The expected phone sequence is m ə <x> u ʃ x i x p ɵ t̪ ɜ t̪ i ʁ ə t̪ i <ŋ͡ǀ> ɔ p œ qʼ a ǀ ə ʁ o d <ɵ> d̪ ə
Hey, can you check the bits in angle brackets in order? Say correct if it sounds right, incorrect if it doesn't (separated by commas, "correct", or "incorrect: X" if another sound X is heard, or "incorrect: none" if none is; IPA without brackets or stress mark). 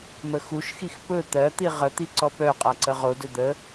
correct, incorrect: ǀ, correct